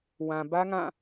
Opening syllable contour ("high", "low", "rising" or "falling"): low